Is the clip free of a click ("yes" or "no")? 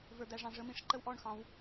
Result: no